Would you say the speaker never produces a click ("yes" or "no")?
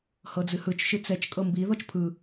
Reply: yes